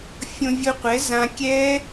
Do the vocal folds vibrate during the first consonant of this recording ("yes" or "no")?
no